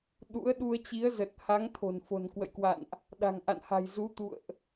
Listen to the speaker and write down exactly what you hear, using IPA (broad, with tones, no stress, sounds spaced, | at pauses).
ɗ ṵ˧˥ ə̯ ɗ u˧ ə̯ t͡ɕ i˨˦ ə̯ z ə˨˩ t̚ h a˨˦ ŋ t̪ʰ o̤˨˩ n f o̤˨˩ n k w ə̰˧˨ j k w a̰˧˨ n ʔ | ɗ a̤˨˩ ŋ ʔ a̰˧˨ n h a̤˨˩ j z u˨˦ t̪ ṵ˧˨ ə̯ ʔ